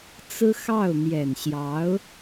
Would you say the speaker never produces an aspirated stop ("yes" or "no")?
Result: yes